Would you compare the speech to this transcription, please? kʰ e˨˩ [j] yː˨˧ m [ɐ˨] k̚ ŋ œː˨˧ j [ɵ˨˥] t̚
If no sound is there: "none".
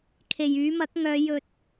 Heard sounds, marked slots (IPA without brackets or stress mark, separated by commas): j, ɐ˨˥, ɵ˧